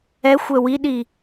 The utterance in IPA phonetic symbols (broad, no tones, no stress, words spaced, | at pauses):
ɛxʷɛ wiɗi